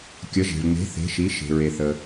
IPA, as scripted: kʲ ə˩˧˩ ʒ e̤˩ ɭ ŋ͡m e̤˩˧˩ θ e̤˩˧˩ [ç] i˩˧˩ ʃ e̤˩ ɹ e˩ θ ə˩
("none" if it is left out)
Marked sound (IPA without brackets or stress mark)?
ʃ